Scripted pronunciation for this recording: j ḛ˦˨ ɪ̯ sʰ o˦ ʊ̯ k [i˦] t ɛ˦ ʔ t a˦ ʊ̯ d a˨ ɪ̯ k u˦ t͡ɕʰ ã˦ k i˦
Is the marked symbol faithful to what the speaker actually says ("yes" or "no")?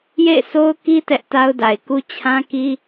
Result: yes